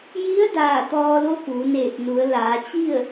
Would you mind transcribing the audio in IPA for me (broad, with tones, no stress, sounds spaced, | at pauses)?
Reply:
j i˧˥ ə̯ d aː˧˩ t̪ ɔː˧ l o˧˥ p uː˩˧ n eː˧˩ p̚ n u˩˧ ə̯ l aː˩˧ t͡ɕ i˥˨ ə̯